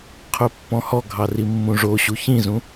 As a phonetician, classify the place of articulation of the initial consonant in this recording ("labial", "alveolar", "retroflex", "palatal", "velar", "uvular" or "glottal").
uvular